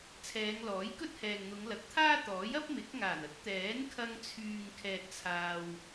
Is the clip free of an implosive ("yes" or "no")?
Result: yes